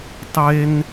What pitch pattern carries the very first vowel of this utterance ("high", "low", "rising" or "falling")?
high